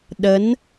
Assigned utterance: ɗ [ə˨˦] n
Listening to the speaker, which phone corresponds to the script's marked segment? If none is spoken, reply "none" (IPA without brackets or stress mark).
ə˨˦